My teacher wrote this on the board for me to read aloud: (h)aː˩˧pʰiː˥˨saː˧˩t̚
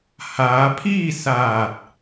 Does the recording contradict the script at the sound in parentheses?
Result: no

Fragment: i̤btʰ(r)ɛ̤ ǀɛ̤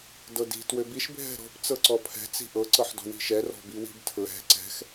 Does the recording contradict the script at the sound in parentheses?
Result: yes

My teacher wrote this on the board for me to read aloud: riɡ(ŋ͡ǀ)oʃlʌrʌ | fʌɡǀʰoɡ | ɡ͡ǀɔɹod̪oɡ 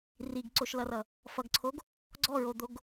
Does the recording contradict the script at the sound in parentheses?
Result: yes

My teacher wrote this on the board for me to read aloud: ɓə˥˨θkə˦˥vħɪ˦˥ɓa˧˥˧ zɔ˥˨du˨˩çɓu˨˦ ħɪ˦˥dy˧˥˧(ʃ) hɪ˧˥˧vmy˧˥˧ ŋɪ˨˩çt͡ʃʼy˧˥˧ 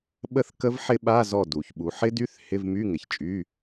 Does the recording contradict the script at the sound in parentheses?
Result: yes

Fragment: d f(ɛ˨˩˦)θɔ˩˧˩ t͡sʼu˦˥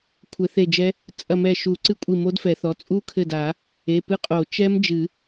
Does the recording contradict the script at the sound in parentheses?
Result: no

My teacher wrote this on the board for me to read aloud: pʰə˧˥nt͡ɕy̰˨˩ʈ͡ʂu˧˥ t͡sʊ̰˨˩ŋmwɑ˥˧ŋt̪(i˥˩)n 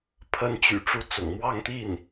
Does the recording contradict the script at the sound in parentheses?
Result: no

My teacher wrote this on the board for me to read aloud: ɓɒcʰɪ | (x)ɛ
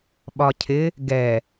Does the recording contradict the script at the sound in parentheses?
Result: yes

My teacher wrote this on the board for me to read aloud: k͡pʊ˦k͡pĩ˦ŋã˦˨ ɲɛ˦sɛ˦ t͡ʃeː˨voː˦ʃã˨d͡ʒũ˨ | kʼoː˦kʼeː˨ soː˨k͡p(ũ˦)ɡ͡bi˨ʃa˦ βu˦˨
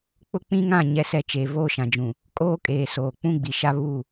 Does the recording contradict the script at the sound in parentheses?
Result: no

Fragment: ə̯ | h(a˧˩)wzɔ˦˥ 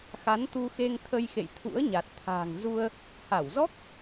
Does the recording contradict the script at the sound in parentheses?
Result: no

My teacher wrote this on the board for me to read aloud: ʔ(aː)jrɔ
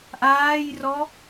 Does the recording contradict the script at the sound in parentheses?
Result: no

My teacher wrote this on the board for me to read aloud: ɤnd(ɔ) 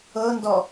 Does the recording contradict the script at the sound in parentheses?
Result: no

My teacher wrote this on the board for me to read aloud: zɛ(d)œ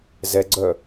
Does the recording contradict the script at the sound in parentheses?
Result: yes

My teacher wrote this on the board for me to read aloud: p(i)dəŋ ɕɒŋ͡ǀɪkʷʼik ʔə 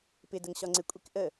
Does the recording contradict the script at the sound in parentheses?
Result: yes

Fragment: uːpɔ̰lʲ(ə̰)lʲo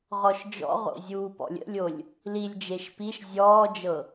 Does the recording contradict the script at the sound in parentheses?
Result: no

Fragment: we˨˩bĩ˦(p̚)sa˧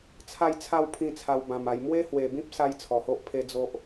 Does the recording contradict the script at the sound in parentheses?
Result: no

